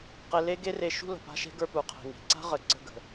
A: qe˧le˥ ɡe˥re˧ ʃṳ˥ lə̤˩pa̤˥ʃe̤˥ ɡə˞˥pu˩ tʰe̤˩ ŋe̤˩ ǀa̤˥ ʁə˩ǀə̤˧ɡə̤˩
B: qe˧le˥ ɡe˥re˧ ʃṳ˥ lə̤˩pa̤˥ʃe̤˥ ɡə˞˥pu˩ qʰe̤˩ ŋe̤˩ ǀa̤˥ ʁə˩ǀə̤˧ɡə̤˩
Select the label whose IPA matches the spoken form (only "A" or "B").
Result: B